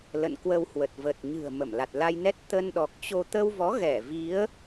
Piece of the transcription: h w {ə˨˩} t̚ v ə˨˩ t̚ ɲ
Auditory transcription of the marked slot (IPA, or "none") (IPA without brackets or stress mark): ə˨˩